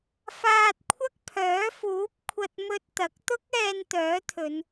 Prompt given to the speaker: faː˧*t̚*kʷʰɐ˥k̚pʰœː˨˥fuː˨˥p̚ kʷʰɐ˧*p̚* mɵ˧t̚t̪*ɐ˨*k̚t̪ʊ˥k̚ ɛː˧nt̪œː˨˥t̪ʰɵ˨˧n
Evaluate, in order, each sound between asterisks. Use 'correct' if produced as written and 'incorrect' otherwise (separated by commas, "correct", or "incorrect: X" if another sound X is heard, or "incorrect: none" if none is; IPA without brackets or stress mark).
correct, incorrect: t̚, incorrect: ɐ˨˥